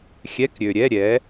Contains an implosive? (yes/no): no